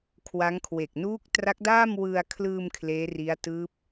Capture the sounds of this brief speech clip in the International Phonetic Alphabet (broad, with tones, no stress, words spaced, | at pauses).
kʰwa˦˥ŋkʰwe˨˩k̚ nuː˦˥k̚tra˦˥k̚daː˥˩m wɯ˧a̯kʰlɯː˧m kʰleː˦˥ri˦˥a̯ tɯː˦˥p̚